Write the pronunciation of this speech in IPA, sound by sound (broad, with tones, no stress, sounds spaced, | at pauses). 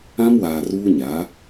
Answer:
ã˦ m w aː˨ r uː˦ ɲ a˨˦